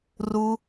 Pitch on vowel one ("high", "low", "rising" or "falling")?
high